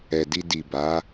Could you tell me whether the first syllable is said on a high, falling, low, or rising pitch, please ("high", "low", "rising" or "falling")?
low